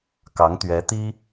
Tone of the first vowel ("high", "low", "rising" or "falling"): rising